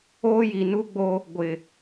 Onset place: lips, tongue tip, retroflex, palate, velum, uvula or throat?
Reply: palate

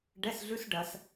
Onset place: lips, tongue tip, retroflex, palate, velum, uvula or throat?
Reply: retroflex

